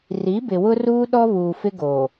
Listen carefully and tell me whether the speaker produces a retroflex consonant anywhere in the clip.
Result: no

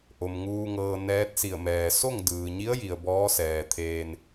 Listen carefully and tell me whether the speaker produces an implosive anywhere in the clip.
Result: no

